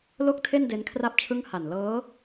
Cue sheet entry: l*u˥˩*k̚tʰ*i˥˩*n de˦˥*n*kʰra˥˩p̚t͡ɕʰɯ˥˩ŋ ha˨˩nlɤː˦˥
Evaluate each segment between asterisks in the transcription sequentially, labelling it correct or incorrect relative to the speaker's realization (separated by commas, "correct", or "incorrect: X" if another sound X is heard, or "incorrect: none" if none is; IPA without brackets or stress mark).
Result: incorrect: o˥˩, incorrect: e˥˩, correct